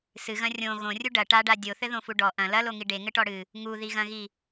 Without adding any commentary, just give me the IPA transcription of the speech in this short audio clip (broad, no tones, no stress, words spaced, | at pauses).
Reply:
sɨɣɐ̃ rʲõ ɣõrʲu ɖɐ ʈaɖa dʲoθɘðõfu ɖɔ ʔɐ̃ lɐloŋi ɖeŋɘʈɔ ɽɨ | ŋuðiɣɐ̃ɣi